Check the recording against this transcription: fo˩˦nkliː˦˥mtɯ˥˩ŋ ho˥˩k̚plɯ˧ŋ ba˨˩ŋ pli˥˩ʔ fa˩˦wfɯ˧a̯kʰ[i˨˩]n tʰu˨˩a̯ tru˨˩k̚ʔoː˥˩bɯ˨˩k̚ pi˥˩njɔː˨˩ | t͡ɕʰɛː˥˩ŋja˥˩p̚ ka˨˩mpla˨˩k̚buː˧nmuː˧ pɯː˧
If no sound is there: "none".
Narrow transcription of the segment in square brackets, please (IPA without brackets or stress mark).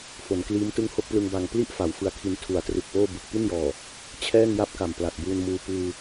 i˧